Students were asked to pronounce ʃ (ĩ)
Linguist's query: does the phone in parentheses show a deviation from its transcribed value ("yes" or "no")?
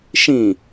no